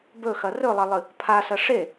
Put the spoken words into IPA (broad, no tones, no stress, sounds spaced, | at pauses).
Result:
b ɵ x ɐ r ɵ lˠ ɐ lˠ ɨ | pʰ a s ɐ ʂ e